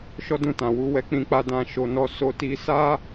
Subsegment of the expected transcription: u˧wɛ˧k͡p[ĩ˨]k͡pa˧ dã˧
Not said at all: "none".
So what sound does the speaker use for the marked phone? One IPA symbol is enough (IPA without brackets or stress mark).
ĩ˧